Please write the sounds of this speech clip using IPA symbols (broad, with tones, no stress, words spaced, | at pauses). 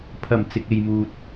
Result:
pʰɐ˨˩m t͡sɪ˨k̚e˨jmuː˨t̚